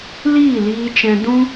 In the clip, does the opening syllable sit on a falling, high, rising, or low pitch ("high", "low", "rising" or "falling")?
falling